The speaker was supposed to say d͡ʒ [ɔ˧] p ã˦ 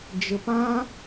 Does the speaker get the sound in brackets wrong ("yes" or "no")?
yes